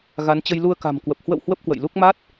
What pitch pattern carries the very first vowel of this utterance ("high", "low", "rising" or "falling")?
rising